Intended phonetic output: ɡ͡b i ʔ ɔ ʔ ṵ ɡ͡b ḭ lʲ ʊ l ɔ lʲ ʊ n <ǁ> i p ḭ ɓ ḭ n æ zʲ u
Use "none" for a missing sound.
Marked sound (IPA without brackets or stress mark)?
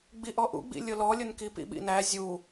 k